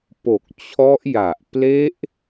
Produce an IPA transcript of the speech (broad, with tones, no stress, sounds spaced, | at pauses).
p o˨˩ k̚ t͡ɕʰ ɔ˦˥ ʔ j a˨˩ ʔ p l e˦˥ ʔ